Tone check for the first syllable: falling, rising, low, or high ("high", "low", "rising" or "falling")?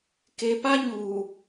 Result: low